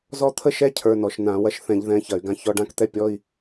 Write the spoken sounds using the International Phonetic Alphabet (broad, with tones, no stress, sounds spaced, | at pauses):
z ɔ˥ t̪ʰ ə˥ ʃ ɛ˥ cʰ ə˞˧˥˧ n ɔ˧˩˧ ʃ n ã˧˩˧ w ɐ˧˥ ʃ θ ɛ̃˧˩˧ ʎ ð ɛ̃˧˥˧ ç ɐ˧˩˧ y̯ ɡ ã˧˥ ç ɔ˧˥˧ ɖ ã˥ k t̪ ɛ˥ pʲ ɔ˧˥˧ i̯